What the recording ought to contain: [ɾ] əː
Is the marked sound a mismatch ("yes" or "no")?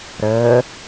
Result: no